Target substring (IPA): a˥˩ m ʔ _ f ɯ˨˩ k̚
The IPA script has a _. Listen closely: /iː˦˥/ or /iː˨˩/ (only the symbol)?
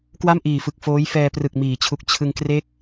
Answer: iː˨˩